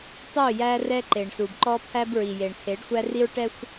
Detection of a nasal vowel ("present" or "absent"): absent